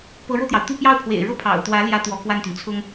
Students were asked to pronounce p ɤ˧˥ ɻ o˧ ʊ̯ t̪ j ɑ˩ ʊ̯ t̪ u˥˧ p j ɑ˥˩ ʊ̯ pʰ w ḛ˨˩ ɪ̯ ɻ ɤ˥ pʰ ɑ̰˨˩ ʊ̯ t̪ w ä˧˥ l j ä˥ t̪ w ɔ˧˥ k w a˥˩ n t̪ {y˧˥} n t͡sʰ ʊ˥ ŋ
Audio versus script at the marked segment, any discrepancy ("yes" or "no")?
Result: yes